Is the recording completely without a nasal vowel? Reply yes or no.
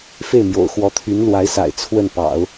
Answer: yes